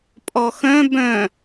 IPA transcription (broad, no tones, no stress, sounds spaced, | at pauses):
pʼ ɔ x œ̃ b œ̃